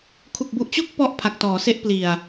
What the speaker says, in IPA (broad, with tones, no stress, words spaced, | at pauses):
kʰu˨˩k̚bu˨˩ʔt͡ɕo˥˩k̚ pɔ˦˥ʔ pʰa˨˩k̚tɔː˩˦se˦˥ʔpli˨˩a̯